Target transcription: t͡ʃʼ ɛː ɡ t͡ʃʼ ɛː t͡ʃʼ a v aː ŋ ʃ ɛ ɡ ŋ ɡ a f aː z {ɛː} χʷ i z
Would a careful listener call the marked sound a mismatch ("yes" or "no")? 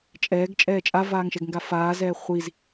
no